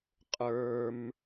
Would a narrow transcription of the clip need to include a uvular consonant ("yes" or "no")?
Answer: yes